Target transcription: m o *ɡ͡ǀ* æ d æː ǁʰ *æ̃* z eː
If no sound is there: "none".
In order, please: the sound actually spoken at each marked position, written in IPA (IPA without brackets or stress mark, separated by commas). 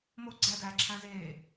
ɡ͡ǀ, æ̃